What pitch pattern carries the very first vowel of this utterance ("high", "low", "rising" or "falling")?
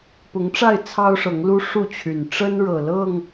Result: rising